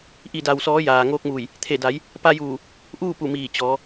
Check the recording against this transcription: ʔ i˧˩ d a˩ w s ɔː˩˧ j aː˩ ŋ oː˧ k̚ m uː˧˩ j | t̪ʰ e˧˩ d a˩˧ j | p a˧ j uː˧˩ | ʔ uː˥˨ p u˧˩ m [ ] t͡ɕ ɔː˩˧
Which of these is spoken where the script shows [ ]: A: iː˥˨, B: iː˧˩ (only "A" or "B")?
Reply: B